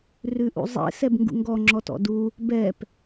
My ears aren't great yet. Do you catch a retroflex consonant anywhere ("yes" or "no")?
no